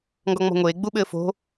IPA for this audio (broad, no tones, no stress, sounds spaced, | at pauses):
ŋ ɡ ɔ ŋ͡m ɔ̤ ŋʷ eː ɡ͡b u ɓ ɘː f o̤